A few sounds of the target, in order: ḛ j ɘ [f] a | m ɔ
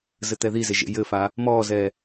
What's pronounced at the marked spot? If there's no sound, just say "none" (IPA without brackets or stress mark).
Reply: f